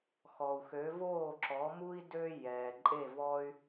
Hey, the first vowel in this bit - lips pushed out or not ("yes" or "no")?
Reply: yes